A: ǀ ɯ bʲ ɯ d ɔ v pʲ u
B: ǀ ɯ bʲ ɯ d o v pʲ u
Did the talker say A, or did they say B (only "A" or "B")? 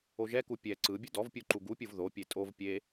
A